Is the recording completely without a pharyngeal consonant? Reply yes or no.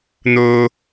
yes